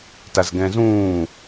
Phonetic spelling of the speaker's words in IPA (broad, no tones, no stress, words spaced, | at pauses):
tazɡɛ̃zũː